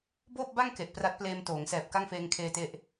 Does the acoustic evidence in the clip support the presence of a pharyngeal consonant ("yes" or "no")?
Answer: no